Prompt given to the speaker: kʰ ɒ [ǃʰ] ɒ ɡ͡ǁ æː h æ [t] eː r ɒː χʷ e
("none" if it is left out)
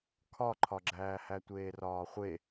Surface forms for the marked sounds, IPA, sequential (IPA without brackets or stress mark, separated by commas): ǃʰ, tʷ